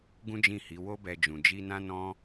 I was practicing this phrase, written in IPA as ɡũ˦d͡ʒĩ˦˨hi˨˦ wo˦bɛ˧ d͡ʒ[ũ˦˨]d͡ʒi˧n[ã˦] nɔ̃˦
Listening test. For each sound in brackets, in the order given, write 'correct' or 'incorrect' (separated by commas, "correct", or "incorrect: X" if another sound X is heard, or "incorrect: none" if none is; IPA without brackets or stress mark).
incorrect: ũ˨, correct